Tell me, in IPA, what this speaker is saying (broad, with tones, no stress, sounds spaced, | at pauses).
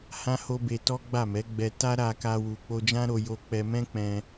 h ã˦ h o˦ b e˧ t ɔ˦ ɡ͡b a˦˨ m ɛ˨˦ ɡ͡b ɛ˧ t a˦ ɾ a˧ k a˧ w u˨ k͡p o˧ d͡ʒ ã˦ ɾ o˧ j o˧ k͡p ɛ˧ m ɛ̃˦ k͡p ɛ̃˧